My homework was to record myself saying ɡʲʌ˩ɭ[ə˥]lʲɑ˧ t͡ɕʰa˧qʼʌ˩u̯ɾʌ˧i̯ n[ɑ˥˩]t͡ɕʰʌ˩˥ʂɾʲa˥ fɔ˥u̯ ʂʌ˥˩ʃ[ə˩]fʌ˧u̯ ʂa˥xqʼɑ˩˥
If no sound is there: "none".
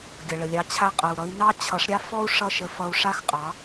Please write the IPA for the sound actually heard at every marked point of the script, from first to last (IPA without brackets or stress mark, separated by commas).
ə˩, ɑ˥, ə˧